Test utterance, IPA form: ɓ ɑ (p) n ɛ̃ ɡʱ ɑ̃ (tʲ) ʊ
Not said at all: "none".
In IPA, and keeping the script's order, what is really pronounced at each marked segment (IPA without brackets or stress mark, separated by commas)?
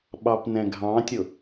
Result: p, tʲ